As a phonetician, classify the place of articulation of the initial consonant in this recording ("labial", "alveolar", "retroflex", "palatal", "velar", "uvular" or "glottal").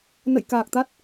alveolar